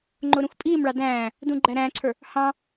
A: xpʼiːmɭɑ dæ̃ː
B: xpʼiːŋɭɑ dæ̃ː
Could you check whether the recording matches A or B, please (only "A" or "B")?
A